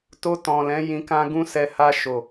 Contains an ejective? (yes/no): no